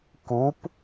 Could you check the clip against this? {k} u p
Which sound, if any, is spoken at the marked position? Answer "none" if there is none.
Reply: k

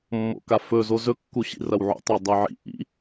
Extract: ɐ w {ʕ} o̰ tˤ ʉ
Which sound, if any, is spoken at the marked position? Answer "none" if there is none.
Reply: ʕ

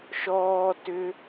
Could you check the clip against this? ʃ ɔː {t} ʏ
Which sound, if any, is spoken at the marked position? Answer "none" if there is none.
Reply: t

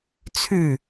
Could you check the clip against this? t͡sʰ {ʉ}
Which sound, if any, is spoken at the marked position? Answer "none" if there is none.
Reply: ʉ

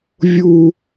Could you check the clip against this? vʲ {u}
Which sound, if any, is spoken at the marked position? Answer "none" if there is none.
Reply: u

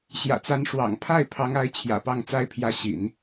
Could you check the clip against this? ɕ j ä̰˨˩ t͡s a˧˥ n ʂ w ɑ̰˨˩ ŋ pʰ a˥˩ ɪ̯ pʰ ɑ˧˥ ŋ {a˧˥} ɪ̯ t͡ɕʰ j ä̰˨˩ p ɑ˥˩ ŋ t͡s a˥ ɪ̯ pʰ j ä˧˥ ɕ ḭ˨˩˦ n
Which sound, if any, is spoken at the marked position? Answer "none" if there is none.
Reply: a˧˥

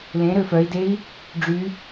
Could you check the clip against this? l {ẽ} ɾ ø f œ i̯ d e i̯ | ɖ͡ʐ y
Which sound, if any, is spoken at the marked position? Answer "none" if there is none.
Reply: ẽ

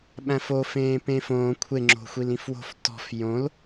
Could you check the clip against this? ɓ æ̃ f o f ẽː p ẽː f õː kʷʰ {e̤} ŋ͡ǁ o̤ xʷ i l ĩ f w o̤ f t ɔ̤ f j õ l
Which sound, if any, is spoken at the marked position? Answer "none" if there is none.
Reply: e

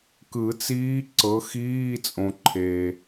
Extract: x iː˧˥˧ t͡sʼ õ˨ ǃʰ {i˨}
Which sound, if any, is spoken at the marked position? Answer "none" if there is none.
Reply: e˨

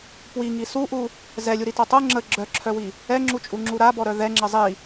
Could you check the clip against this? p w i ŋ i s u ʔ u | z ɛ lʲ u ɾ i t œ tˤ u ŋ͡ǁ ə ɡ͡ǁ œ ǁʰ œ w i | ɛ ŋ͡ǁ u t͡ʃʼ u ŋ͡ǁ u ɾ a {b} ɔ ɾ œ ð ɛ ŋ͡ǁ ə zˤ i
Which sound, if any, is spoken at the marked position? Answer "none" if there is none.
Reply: b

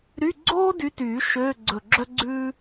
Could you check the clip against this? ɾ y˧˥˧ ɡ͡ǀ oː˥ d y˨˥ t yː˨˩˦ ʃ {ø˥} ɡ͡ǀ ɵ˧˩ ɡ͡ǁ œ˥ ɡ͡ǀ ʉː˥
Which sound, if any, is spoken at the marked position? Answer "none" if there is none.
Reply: ø˧˥˧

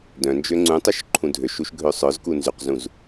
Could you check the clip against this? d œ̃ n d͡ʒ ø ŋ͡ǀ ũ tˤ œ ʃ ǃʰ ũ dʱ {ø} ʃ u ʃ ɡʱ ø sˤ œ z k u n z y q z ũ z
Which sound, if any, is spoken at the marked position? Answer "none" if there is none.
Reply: ø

